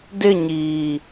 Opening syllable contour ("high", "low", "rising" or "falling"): falling